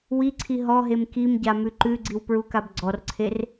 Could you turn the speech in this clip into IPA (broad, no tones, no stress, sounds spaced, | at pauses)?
w i ǀʰ i ɦ ɔ ɦ e m k i m ɟ a m ʉ ǃ ʉ ɡ͡ǀ i w p ɹ u k a b ɡ͡ǀ ɔ r ǀʰ e r